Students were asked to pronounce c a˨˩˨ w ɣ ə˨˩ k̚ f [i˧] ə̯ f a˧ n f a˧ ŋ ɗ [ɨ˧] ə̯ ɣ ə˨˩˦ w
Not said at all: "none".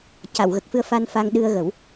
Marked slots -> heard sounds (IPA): ɨ˧, ɨ˧

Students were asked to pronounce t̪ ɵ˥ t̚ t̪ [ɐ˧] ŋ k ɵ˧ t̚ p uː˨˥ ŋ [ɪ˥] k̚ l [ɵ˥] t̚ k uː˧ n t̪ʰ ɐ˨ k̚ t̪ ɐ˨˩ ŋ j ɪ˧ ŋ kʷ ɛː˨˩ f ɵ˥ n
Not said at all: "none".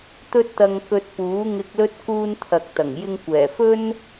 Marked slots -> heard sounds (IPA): ɐ˧, ɪ˧, ɵ˥

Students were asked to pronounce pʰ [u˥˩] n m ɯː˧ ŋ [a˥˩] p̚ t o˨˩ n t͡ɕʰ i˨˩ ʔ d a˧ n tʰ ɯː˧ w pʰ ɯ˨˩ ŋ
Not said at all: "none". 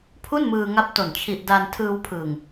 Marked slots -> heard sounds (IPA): u˥˩, a˦˥

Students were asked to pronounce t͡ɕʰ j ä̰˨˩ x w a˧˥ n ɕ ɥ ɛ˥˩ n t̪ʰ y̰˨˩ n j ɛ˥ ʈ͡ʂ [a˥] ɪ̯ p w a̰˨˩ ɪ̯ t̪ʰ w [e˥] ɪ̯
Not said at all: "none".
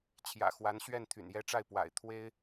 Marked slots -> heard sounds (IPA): a˥˩, e˥

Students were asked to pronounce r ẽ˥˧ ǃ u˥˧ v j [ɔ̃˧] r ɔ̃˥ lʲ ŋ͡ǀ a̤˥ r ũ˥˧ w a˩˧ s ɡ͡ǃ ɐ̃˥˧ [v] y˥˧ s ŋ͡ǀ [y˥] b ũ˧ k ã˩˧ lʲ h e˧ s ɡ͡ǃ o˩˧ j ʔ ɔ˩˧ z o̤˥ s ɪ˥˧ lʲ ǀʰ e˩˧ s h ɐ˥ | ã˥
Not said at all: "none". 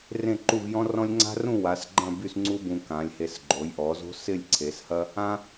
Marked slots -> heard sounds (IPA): ɔ̃˥, b, u˥

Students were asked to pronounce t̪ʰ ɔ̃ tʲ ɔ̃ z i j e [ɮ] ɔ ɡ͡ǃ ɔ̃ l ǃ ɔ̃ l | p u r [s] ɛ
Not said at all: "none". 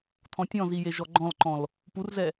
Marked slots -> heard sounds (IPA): ʒ, z

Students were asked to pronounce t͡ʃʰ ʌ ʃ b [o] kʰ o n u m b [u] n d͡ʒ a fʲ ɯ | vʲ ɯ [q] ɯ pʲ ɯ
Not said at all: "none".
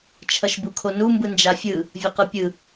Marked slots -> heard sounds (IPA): u, ɯ, q

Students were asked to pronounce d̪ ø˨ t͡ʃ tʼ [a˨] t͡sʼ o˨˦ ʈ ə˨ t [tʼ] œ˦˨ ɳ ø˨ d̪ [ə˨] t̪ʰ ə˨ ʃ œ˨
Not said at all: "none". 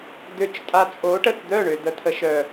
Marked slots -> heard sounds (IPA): a˨, d̪, ə˨

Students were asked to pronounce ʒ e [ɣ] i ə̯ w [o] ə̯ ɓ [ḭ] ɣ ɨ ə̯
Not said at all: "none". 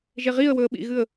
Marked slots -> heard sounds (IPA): ʁ, ɵ, ḭ

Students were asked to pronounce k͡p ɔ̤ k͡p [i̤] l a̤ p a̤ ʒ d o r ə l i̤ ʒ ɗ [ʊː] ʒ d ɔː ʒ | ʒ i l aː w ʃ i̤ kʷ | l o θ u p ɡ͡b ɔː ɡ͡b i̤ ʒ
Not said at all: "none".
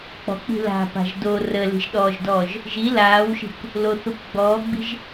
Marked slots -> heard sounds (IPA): i̤, ɔː

